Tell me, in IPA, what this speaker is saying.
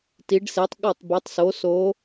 t i˩˧ ɖ s e˩˧ tˤ ɠ ɔ˧˩ tˤ b e˩˧ tˤ s o˩˧ s o˩˧

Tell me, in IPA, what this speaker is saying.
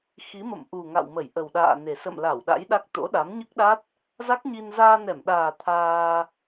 x i˨˦ m ə̰˧˨ m ʔ u˨˩ ŋ a̰˧˨ w m ə˧˩ j ʔ ə˨˩ w ɗ a̰ː˧˨ n e˨˩ s ə̰˧˨ m l a˧˩ w ɗ a̰˧˥ j ɗ a˦˥ k̚ t̪ o̰˧˥ ɗ a˨˦ m ɲ ɨ˦˥ k̚ ɗ a˦˥ t̚ | z a˦˥ k̚ ɲ i˧ n z aː˧ n ɛ˧˩ m ɗ aː˨˩ t̪ʰ aː˧

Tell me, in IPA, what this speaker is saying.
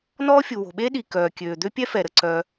n ɔː˥ fʲ u˩ w o̤˩ ɓ eː˥ ɗ i˩ k œː˩ kʲ øː˩ d̪ ø˥ pʲ ɛ˥ f ɛ˩ ɾ ə˩ ǀ œ˩

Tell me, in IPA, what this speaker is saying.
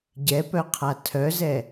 ɟ ɛ p œ qʰ a tʰ œ z ɛ

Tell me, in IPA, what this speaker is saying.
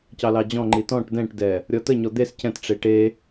c ɑ l ɑ d͡ʑ ɔ̃ ŋ͡ǃ i t ɔ̃ ʈ d ɛ̃ ʈ d ɛ | ɾʲ ɔ t ə ɲ ɔ d̪ e s c ɛ̃ t ʈ͡ʂ e ʈ e

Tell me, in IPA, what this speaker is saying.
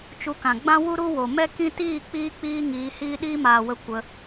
t͡ʃ u˧ k ã˨ ɡ͡b ã˦ w u˦ ɾ u˦ w o˨ m ɛ˦ k ĩ˦ t iː˦˨ k͡p iː˧ k͡p iː˧ ŋ iː˨˦ h iː˦ ɗ iː˦ m aː˨ w ə˧ kʷ ə˧

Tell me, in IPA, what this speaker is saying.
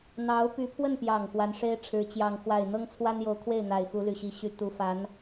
n̪ ɑ˧˥ ʊ̯ p y˧˥ pʰ w ə˥˩ n p j ɑ˨˩ ŋ k w a˧˥ n ʂ e˥ ɪ̯ ʈ͡ʂʰ ɻ̩˧˥ t͡ɕ j ɑ˥˧ ŋ x w a˥˩ ɪ̯ n̪ ɤ˥ ŋ t͡sʰ w a˥ n j o˧˥ ʊ̯ kʰ w e˥˩ ɪ̯ n̪ a˨˩ ɪ̯ x u˧˥ l y˨˩ ɕ i˧˥ ɕ y˧˥ t̪ u˧˥ f a˧˥ n

